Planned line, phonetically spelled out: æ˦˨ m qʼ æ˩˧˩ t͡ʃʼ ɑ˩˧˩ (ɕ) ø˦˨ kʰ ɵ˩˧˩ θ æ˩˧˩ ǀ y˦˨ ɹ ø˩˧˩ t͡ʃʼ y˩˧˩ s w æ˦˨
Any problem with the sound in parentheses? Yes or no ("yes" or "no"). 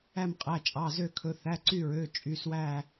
yes